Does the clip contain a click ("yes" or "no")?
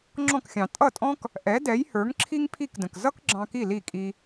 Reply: yes